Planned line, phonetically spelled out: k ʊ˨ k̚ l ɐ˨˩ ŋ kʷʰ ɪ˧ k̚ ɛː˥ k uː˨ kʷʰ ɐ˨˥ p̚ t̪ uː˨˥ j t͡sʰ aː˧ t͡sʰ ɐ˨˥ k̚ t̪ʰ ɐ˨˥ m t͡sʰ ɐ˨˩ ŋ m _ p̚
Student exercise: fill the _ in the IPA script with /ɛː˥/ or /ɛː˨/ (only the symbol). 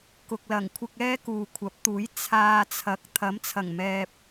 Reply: ɛː˨